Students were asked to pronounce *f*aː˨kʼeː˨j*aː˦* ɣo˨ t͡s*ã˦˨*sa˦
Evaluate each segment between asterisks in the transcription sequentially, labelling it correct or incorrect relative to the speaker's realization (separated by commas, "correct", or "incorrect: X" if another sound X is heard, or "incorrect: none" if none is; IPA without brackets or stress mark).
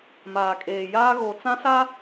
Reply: incorrect: m, correct, incorrect: ã˦